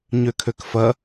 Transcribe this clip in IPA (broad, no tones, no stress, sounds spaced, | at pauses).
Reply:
ɲ ø kʰ ø k f ɐ